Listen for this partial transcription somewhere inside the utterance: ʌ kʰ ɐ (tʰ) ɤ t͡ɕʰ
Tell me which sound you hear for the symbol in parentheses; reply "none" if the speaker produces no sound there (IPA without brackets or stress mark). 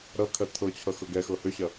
tʰ